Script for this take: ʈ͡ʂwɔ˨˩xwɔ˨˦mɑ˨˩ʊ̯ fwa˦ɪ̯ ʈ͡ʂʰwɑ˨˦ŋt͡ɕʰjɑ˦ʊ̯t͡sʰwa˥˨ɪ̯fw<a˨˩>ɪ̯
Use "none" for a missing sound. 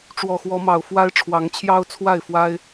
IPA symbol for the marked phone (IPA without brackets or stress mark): a˦